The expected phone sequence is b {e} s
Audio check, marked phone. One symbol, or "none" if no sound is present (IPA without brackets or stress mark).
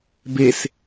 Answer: e